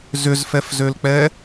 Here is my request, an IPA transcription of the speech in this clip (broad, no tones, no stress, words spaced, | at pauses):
zʏzfɛfzølk͡pɛ